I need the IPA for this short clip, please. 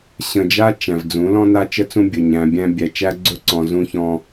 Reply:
ɕ ə̃˨ d͡ʒ a˦ t͡ʃ æ̃˨ v d͡z ũ˨˦ l ɔ̃˦ n a˦ t͡ʃ ə˦ t͡s ũ˦ bʲ ɵ˨ ɲ æ̃˨ bʲ æ̃˦ bʲ æ˨ t͡ʃ æ˦ ɡ͡ǀ ɵ˦ ǀ ɔ̃˨ z ũ˦ ç ɔ̃˦

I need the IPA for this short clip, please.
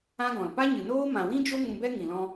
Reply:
ã˦ ɡ ɔ̃˨ l p a˦ ɲ ɨ˨ n oː˦ m ã˨ w ĩ˦ d͡ʒ o˦ ŋ ũ˧ b ɛ˦ ŋ ĩ˨ l ɔ̃˧

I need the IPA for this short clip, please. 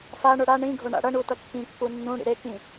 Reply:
f a ɳ o ɽ a ɳ ĩ ɡʱ o ɳ a̰ ɽ ʌ ɳ u t ʌ kː ĩ kː u nː ũ ɽ ḭ ɾ e k ĩ

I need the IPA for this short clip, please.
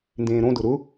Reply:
n d ẽː ɾ õ d ʊ ɾ ʊ

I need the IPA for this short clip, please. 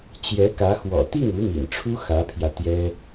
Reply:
t͡ɕ j ɛ˧˥ k ä˧˥ x w ɔ̰˨˩ t̪ i˥˩ ŋ u˧˥ m ḭ˨˩ n ʈ͡ʂʰ u˥ x ä˧˥ pʰ j ä˧ t̪ j ɛ˥

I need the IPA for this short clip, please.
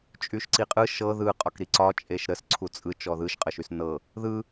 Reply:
t͡ʃʼ y ʃ ǀ i qʼ ɯ ʃ ɤ ð ɯ qʼ ɒ k ɾ i ǀ ɒ t͡ʃʼ e ʃ ɾ ə s ǀʰ u t͡sʼ ɯ t͡ʃ ɔ ð ɯ ʃ qʼ ə ʃ y s n ɤ | ð ɯ

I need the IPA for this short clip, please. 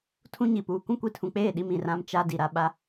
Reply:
tʰ ũ˦ ɲ i˨ p uː˨ kʷ ũ˦ kʷ i˨ tʰ ũ˨ k͡p eː˦˨ ɗ i˦ m ĩ˨ r ã˦ m t͡ʃ a˦ d i˨ ɾ a˦ ɓ a˦

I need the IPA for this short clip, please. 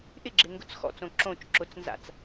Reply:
ʔ ɪ ɡ͡ǁ ɪ ŋ ɡ ʊ t͡s x ɔ̰ t͡s õ ǁ õ t͡ʃ ǁ ʊ t͡s n z a̰ t͡s

